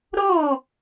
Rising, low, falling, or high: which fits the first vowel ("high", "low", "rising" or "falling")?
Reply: falling